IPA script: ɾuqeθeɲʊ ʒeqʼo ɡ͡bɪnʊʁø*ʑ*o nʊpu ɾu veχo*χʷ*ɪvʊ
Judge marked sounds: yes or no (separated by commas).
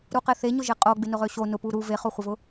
no, yes